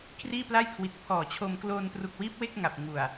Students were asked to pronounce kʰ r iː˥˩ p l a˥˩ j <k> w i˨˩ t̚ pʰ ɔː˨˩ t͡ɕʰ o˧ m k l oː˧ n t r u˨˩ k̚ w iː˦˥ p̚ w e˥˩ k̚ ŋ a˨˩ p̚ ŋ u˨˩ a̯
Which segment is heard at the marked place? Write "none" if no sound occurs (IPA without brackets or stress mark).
kʰ